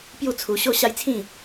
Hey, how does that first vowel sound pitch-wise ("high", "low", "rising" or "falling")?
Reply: falling